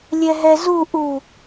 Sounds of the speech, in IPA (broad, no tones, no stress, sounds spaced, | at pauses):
lʲ ɛ ɦ ɛ z u ʔ u